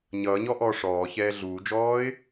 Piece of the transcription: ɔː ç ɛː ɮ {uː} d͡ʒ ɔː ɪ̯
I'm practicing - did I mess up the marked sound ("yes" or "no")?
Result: no